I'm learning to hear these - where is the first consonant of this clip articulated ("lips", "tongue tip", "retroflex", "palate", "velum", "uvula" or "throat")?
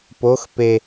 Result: lips